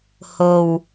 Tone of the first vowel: low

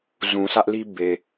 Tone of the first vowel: low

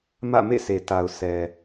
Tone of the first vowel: falling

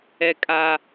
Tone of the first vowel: high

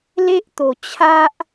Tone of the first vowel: high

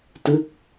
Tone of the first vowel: falling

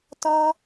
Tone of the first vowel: high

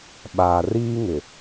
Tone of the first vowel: low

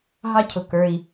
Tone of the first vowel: high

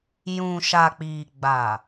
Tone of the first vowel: low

